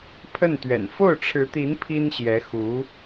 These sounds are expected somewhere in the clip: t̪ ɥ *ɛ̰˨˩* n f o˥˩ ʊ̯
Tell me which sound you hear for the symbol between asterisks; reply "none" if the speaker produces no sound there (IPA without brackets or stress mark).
ɛ̰˨˩